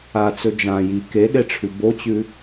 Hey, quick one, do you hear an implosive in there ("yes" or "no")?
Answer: yes